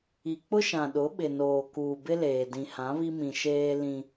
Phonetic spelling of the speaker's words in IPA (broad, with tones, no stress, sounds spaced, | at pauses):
i˨ k͡p ʊ˦ ʃ ã˨ ɗ ʊ˨˦ ɓ ɪ˨ n oː˨ k uː˨ b ɪ˦ l eː˨ d ĩ˨ h ã˨˦ β i˦ m ĩ˨ ʃ eː˦ l ĩ˦